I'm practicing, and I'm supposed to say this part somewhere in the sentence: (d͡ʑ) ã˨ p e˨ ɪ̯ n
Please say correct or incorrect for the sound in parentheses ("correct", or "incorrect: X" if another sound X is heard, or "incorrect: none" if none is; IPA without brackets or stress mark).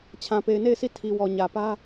incorrect: t͡ɕʰ